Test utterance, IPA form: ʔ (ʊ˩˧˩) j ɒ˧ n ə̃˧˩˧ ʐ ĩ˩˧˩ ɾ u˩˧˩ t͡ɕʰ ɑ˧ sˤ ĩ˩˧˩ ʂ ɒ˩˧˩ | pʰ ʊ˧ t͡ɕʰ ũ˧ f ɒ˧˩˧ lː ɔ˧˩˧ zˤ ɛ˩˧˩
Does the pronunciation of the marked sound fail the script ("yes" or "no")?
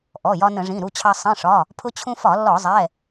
yes